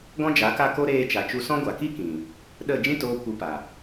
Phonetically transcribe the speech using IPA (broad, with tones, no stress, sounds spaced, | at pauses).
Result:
ɡ ɔ̃˦ d͡ʒ a˨˦ k a˦˨ k o˦ ɾ eː˧ t͡ʃ a˨ t͡ʃ u˧ s ɔ̃˦ ɡʷ a˨ k i˦ k ĩ˨ | ɗ ə˦˨ d͡ʒ ĩ˦ t oː˧ kʷ ɨ˨˦ p a˨